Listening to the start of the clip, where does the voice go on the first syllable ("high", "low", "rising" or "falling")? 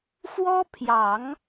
high